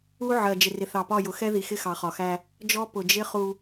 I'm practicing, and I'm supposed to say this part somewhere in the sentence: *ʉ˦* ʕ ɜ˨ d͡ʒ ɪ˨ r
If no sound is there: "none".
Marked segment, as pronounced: u˦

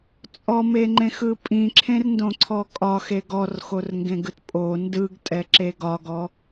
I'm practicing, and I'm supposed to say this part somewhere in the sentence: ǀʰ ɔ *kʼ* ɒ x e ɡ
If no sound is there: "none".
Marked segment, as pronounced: kʼ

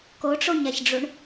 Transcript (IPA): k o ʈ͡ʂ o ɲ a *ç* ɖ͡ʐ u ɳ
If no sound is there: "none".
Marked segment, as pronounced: ç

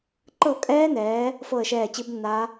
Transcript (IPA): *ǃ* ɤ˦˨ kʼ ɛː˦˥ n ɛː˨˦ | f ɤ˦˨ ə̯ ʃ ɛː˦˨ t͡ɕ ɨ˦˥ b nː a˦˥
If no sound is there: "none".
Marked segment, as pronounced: ǃ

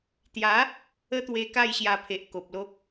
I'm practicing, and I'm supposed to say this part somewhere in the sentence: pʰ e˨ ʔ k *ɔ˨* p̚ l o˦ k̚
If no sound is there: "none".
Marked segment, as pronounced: o˨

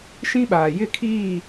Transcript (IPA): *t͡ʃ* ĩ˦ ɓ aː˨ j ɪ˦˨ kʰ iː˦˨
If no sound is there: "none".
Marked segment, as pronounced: ʃ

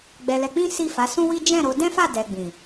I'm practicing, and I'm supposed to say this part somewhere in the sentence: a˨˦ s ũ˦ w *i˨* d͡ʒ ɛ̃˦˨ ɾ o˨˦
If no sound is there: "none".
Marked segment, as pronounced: i˦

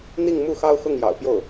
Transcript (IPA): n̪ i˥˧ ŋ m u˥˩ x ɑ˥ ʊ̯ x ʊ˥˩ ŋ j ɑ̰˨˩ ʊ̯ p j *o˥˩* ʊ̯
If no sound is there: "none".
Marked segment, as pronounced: o˥˩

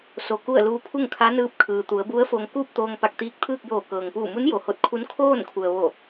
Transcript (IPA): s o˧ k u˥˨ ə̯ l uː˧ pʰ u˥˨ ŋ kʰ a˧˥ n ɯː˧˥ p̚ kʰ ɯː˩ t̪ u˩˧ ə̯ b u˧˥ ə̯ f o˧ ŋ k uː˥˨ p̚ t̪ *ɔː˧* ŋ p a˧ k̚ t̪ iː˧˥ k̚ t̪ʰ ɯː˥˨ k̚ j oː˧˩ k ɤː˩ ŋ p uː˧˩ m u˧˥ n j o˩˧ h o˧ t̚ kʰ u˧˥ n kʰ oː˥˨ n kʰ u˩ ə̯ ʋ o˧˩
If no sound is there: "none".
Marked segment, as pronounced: oː˧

